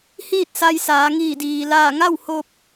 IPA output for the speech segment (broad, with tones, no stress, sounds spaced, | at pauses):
h iː˥˨ t̚ s a˧ j s aː˩˧ ŋ iː˧˩ d iː˩ l aː˧˩ ŋ a˥˨ w h o˧ p̚